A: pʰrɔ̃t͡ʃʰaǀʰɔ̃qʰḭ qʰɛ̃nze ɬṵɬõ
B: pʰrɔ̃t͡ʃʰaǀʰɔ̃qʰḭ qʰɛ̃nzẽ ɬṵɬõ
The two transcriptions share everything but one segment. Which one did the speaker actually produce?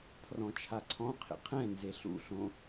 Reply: A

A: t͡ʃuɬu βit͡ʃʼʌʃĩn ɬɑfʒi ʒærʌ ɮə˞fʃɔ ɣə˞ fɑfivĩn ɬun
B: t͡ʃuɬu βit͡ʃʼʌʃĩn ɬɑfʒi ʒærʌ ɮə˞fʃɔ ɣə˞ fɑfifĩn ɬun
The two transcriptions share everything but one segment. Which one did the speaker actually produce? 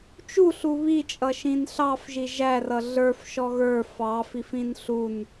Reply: B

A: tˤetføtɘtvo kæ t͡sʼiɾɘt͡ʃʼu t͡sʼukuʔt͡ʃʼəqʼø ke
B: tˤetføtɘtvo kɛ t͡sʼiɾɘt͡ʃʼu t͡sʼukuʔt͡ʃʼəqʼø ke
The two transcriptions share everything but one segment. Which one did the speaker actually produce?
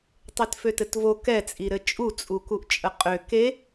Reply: B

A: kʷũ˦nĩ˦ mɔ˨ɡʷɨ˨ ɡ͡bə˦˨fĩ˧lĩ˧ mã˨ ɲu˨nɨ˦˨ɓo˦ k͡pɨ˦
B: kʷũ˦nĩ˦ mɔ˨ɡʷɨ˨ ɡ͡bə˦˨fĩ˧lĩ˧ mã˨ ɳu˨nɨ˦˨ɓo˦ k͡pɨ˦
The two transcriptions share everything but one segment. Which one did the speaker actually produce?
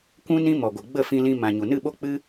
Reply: A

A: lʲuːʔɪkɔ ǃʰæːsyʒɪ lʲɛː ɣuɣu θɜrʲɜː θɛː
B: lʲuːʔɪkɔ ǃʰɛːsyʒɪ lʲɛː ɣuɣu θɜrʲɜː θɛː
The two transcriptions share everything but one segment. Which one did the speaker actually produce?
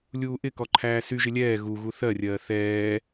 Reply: A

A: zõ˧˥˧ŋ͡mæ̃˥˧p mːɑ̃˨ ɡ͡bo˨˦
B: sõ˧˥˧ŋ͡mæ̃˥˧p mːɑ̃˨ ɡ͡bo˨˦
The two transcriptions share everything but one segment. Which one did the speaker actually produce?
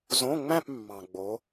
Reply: A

